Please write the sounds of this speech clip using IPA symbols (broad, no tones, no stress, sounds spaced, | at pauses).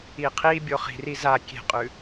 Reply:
i qʰ i bʲ o χ i̤ r i z a kʲ e̤ qʼ ʉ